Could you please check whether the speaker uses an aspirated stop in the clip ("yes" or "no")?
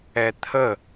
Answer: yes